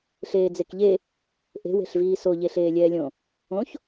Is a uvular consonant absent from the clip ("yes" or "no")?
yes